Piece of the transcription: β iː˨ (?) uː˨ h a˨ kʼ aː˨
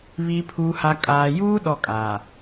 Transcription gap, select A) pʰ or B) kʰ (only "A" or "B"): A